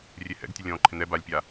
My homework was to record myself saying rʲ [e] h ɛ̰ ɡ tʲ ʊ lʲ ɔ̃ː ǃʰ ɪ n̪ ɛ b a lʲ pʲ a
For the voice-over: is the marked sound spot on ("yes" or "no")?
yes